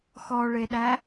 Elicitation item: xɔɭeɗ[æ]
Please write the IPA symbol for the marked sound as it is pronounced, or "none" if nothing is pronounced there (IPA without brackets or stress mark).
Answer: æ